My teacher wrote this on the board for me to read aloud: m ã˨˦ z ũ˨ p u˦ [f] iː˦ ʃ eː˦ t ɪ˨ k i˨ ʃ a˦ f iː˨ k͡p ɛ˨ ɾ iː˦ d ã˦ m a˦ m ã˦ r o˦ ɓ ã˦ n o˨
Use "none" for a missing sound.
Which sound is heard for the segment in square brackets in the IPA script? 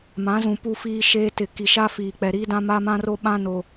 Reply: f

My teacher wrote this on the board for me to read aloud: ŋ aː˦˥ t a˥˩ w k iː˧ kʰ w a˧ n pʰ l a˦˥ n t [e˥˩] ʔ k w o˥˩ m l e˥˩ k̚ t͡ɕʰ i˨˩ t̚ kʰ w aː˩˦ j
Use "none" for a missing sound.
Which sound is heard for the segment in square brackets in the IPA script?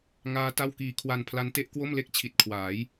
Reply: e˥˩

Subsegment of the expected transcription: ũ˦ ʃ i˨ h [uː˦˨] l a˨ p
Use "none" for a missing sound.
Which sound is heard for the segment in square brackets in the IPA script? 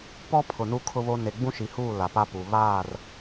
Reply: uː˦˨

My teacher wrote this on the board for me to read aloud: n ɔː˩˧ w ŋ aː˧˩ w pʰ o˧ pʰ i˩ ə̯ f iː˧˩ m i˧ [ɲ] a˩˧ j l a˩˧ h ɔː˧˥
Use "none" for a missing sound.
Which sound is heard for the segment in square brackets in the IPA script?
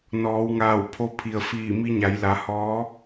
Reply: ɲ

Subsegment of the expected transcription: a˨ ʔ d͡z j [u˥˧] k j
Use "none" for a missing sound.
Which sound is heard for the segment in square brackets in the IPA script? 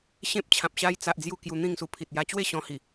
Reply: u˥˧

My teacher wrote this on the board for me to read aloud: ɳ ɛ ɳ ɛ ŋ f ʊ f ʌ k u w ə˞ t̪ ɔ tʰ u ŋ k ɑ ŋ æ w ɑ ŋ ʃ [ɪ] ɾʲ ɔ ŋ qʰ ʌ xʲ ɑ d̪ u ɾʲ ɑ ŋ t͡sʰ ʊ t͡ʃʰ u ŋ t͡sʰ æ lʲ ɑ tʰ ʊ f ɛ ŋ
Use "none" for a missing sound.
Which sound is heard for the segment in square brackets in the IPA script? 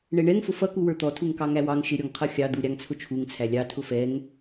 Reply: ɪ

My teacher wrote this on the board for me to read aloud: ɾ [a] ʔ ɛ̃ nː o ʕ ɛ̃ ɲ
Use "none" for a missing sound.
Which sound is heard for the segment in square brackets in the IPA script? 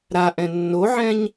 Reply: a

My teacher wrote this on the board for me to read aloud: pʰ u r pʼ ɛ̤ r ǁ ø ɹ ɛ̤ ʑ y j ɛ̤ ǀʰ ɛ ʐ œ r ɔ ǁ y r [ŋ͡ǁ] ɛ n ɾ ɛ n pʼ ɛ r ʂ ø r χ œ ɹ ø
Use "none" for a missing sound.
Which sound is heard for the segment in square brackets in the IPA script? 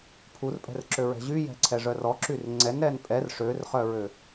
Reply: ŋ͡ǀ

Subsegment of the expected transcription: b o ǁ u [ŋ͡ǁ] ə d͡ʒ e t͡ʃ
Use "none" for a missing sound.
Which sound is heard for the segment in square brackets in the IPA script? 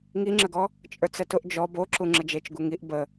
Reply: ŋ͡ǁ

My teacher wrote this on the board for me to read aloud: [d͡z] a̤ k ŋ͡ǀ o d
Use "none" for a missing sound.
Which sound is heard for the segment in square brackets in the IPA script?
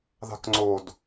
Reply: ð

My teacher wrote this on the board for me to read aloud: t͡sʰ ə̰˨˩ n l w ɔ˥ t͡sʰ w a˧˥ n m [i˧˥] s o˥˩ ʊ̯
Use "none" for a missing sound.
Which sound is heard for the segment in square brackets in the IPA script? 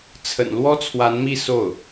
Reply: i˥˧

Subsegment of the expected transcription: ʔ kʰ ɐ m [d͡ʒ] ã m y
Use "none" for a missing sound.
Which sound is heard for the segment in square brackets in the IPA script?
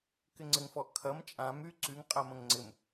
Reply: t͡ʃʼ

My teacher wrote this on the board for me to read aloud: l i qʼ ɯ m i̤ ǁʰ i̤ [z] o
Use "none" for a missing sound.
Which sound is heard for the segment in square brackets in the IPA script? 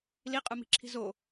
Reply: z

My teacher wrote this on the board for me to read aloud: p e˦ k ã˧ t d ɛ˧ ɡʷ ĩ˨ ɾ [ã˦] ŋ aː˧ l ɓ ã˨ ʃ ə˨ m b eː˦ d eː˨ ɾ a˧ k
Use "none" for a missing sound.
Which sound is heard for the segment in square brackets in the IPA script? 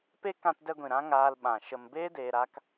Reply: ã˦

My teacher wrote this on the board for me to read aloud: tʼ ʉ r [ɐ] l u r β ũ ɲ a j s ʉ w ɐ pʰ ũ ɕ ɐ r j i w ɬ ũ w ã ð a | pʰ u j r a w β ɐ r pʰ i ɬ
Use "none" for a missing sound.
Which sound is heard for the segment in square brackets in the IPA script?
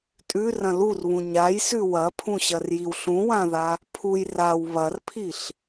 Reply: ɐ̃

